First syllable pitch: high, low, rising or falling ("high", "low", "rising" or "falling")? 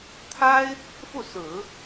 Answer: high